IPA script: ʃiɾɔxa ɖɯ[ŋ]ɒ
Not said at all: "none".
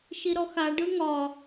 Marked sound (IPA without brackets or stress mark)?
ŋ